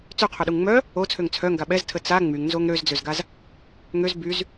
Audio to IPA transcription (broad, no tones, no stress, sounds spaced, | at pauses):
t͡s ø qʰ œ ɗ u ŋ ŋ͡m œ | o t͡sʰ ø ŋ t͡sʰ œ ŋ ɡ a ɓ ɛ z tʰ ə t͡s a ŋ͡m y ŋ n z o ŋ ɾ ø z d͡z ø z ɡ a z | ŋ ø z b y z